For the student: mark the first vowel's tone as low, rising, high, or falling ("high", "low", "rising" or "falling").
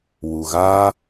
low